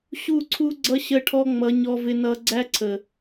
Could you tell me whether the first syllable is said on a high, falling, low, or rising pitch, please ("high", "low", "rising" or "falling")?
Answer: falling